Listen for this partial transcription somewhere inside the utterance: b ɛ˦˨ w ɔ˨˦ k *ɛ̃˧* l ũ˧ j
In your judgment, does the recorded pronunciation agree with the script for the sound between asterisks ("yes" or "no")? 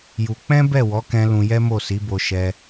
yes